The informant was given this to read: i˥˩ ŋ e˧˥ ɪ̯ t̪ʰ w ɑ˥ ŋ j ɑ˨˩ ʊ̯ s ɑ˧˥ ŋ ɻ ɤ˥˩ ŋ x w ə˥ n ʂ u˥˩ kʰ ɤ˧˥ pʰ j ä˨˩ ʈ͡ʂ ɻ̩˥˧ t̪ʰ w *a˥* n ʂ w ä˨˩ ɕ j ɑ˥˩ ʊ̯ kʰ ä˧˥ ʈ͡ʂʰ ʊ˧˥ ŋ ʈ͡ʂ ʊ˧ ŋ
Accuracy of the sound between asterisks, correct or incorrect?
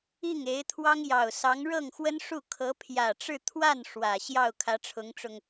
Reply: incorrect